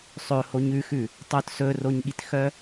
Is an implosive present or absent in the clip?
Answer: present